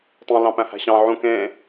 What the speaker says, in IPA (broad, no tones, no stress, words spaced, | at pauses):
tˤũ lɑ̃pæ̃hæ̤ɕɑ̃ ʕũ kẽ